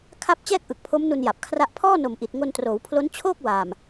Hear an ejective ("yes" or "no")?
no